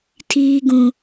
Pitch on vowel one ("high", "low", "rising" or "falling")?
low